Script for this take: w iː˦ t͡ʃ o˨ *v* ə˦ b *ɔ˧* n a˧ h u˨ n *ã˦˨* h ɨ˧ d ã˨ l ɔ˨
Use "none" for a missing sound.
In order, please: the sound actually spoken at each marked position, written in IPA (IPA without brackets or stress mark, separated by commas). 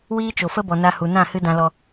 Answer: f, ɔ˨, ã˦˨